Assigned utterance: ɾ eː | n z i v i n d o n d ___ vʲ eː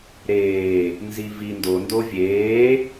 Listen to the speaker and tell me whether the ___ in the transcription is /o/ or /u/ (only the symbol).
o